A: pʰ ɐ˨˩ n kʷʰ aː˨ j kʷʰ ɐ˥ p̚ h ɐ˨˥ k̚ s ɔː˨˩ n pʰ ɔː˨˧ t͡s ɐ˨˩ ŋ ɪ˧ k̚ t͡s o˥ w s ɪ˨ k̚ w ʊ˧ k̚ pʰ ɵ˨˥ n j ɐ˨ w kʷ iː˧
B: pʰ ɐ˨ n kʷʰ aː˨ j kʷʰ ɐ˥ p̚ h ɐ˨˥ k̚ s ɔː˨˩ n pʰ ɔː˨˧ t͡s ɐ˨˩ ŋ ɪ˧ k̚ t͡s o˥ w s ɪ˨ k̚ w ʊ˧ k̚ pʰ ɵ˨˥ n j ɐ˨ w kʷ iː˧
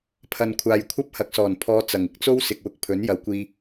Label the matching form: B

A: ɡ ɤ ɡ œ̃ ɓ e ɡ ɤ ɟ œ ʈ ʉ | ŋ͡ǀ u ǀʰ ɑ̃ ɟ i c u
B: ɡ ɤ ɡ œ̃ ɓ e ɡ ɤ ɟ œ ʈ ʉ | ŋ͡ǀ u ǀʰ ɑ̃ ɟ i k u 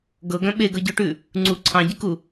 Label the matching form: B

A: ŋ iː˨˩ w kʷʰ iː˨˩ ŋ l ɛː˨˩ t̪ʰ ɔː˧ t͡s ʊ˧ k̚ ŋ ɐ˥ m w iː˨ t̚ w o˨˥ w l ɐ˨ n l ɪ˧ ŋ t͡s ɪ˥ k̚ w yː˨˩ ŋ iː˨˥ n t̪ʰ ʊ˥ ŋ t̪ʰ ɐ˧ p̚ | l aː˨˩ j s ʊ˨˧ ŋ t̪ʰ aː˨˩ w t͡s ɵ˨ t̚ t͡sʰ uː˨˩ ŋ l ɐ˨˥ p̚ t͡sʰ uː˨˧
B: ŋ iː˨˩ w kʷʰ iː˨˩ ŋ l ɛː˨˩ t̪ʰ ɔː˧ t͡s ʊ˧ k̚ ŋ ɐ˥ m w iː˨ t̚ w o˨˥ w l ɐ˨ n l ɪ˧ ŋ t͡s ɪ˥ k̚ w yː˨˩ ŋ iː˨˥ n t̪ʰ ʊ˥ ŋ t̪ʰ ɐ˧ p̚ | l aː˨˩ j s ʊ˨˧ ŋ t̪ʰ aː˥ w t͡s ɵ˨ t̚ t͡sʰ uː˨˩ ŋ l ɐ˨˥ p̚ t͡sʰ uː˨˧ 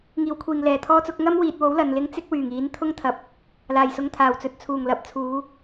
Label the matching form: A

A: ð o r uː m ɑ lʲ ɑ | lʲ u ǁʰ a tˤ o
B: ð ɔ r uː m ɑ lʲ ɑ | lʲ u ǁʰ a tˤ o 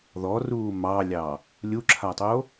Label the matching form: B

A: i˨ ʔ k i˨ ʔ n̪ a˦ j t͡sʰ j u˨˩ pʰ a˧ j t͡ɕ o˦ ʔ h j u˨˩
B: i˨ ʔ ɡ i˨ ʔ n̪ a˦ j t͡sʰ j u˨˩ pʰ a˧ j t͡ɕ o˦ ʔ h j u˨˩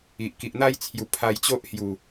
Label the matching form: A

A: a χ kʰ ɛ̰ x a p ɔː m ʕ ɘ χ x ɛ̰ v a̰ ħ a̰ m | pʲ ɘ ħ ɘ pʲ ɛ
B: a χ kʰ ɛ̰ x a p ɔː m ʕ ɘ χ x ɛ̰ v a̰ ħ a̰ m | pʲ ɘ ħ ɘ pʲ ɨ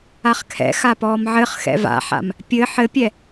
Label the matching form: A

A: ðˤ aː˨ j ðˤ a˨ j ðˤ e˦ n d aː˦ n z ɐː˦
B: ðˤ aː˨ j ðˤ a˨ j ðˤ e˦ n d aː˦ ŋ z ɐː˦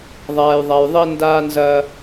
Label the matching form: A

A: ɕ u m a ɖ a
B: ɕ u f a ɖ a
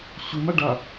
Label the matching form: A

